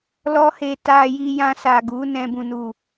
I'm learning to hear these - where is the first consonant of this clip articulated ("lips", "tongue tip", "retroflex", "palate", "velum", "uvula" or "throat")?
tongue tip